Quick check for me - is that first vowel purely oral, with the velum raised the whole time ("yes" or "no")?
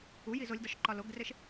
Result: yes